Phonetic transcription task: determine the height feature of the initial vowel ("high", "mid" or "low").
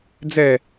mid